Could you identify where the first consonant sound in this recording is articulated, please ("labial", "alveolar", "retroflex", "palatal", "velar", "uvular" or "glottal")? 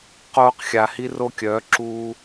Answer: uvular